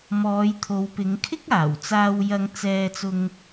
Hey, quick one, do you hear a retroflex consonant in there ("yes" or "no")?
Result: no